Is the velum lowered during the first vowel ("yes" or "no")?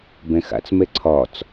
yes